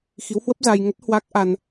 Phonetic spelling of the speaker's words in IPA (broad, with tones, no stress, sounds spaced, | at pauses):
x i˨˦ w h w ə˦˥ p̚ z a˧ j ŋ ə˦˥ t̚ h w a˦˥ k̚ ʔ a˧ n